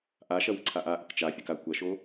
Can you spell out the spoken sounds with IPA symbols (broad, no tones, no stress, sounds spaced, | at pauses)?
ʔ a ʃ ɐ w ə ǀʰ a ʔ a ʔ ə k t͡ʃ a fʲ ɐ k a kʷ ɐ ʃ o